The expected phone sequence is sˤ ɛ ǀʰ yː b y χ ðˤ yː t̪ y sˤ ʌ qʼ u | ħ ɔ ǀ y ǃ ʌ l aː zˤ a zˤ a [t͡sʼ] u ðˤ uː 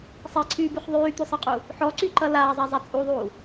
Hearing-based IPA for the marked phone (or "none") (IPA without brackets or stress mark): t͡sʼ